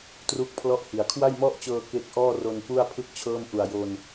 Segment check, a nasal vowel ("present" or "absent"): absent